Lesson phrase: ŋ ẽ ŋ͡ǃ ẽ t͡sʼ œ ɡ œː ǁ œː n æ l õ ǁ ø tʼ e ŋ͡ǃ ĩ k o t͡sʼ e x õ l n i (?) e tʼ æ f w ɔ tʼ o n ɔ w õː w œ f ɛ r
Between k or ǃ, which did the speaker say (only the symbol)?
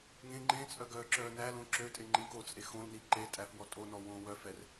ǃ